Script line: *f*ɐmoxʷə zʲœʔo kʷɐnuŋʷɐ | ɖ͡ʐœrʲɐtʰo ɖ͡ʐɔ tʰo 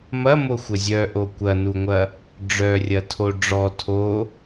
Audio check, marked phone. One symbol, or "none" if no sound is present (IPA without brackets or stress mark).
m